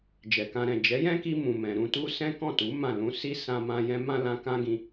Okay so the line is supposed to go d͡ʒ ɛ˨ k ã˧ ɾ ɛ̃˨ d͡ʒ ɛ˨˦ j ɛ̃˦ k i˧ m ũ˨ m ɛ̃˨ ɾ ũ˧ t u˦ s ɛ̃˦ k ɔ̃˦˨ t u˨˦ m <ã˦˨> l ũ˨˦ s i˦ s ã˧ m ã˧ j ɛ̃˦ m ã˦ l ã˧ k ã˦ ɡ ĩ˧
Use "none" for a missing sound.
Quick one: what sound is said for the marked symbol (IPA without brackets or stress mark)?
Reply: ã˦˨